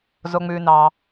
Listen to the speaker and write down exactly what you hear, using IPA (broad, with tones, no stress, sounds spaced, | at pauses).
z o˩ ŋ͡m ʉ˩ n ɑ˩